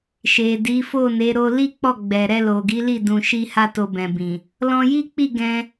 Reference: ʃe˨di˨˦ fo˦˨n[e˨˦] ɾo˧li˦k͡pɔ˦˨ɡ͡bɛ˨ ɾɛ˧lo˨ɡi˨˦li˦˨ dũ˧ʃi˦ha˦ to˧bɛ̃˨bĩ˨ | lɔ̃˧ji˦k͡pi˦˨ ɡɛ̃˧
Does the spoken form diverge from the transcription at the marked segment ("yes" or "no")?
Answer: no